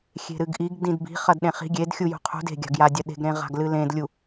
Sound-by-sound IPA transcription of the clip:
xʲe̤ɾɨɡʔiɡ dĩdbi̤ χɐdɗẽχi̤ ɡʲed xʲujṳqʰṳd e̤ɡʲa̤ɡja dʲɐɗe̤ɡɾẽʁa̤ɡ lɨlẽdlʲu

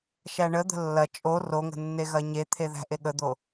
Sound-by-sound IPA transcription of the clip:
ʃæɳəd̪ə̤ lːɐ t͡ʃʼo roŋə̤ nːeɣɐɲet̪ʰe ðæ̤ʔeɠəd̪o

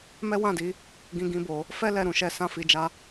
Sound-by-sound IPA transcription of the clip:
mɛ˦wã˦˨di˨˦ | ɡĩ˦ɡĩ˦bo˧ | fɛ˦ lɛ˦˨ɾũ˧ʃɛ˧ sã˦fi˧d͡ʒa˦

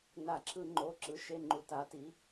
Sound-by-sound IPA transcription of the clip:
na˧˩˧ǁʰɯ˧˩˧ŋ͡ǃo˩˧˩ ǁɯ˩˥ʃe˩˧˩ŋ͡ǃu˩˧ ta˩˧ti˩˧

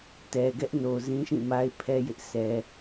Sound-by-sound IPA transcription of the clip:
tɛ˨ɡɛ˦ʔno˨zĩ˦ ʃĩ˦˨ma˦ɪ̯ pʰɛ˦ jɪ˦ʔsɛ˦

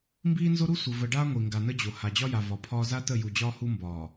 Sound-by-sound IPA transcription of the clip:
mbiː˦nzo˦ɾu˦ sʷə˨ və˨ɖaː˦ ŋʷi˨ŋɡa˨nə˦d͡ʑo˨ ha˨d͡ʑɒ˦ja˨ vɒ˨pʰɒː˦ za˦tə˦˨ju˨ d͡ʑɒː˦hu˦mbɒː˨

